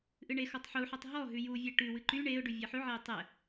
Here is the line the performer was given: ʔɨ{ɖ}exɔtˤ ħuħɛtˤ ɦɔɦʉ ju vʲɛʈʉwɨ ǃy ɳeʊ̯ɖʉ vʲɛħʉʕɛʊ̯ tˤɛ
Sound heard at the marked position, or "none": ɳ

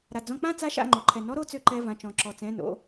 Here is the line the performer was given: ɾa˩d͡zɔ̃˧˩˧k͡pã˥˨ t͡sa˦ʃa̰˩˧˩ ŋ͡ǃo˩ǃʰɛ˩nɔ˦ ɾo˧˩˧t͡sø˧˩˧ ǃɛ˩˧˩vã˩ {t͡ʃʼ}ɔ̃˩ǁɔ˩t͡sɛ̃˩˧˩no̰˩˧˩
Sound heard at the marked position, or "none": t͡ʃ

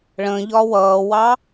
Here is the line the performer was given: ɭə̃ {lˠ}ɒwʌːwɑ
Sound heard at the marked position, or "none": ʎ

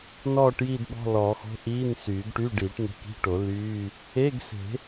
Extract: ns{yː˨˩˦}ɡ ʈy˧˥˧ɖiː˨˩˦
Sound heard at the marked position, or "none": yː˨˩˦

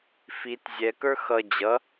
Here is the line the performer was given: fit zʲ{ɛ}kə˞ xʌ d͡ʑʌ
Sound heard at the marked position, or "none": ɛ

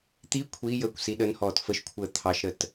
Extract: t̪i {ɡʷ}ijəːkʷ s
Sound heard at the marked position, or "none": kʷʰ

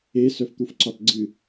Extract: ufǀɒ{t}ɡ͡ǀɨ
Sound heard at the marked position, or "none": t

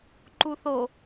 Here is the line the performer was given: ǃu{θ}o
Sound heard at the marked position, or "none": θ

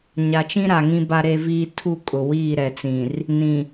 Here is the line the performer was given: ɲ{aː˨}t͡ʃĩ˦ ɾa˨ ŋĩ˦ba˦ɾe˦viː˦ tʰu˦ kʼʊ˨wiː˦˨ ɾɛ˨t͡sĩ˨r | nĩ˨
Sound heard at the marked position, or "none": a˨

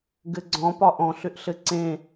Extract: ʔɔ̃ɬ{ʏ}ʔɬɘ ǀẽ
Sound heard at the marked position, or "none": ʏ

